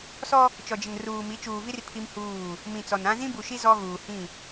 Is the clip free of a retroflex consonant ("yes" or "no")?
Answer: yes